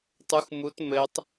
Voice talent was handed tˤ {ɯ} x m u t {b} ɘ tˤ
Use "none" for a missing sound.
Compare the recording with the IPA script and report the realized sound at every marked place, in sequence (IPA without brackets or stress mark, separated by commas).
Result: u, m